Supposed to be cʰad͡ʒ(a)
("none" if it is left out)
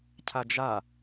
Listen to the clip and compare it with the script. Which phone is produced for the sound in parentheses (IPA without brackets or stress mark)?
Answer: a